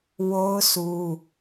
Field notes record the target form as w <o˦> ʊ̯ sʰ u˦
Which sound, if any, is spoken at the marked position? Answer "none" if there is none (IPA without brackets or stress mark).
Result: o˦